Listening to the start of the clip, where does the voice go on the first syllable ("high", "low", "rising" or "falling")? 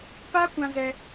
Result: high